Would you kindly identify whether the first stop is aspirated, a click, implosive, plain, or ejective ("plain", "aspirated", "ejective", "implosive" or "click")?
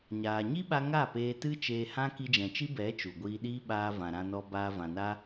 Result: implosive